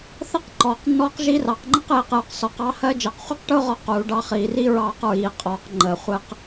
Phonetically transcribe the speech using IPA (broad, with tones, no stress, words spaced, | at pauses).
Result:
θɛ˥qǃɔː˩˧qnːɔː˧˥q ʒi˧˥rɑ˩˧qŋ͡ǃə˥q ji˩˧qjʊ˩˧q sɔ˩˧q ɑ˧˥hɜ˧˥ d͡ʒɜ˩˧qχʷi˥qʈʊː˥ʁɒ˧ quː˩˧ɖɑ˧χiː˩˧ri˥ ɹɑː˧qɹiː˩˧qʼɔː˩˧q ŋ͡ǃəː˩ χʷɛ˧q